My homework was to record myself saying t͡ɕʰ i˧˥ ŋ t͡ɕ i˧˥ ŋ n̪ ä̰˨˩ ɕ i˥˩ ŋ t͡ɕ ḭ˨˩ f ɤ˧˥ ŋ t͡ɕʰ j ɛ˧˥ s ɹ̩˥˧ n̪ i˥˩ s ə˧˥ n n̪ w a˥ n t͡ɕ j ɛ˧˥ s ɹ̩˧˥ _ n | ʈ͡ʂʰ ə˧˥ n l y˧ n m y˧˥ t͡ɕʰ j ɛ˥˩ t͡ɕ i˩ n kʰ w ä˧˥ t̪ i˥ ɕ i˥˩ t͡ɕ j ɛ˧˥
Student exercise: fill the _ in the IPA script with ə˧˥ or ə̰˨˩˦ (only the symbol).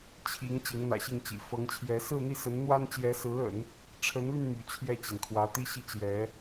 ə̰˨˩˦